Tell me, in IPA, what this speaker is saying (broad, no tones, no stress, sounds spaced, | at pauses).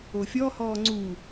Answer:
o fʲ ɔ h ɔː ŋ͡ǀ u